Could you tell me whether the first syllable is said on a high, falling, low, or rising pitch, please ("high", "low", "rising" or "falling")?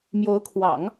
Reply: rising